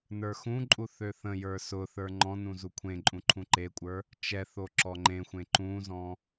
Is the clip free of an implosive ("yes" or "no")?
yes